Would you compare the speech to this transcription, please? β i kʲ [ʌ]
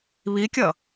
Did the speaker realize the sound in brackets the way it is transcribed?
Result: yes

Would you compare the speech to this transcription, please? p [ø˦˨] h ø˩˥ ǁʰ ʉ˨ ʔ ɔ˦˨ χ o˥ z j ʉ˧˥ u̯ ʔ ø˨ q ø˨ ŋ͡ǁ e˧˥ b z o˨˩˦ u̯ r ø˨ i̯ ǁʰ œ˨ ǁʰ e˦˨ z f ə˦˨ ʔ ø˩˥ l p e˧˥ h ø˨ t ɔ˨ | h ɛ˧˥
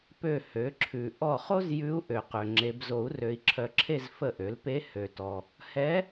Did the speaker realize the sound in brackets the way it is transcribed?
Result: yes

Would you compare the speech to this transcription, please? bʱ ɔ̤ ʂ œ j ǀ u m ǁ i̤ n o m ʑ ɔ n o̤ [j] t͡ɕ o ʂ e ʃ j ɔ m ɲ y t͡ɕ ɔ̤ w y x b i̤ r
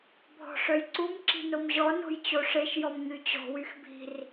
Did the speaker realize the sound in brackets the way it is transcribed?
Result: yes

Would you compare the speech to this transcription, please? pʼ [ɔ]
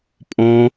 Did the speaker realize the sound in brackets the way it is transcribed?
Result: no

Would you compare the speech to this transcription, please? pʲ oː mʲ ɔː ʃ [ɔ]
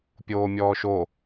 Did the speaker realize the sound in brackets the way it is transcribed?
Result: no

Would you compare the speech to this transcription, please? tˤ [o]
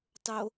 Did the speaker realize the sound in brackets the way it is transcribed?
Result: yes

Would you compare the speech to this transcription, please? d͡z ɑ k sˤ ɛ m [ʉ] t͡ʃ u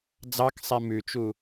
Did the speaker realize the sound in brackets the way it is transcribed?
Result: yes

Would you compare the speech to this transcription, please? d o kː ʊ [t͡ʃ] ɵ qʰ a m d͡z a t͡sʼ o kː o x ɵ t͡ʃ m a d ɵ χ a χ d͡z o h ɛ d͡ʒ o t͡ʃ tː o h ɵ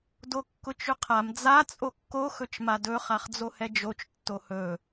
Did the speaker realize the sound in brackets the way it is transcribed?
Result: yes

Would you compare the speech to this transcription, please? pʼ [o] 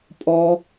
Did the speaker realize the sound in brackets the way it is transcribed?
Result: no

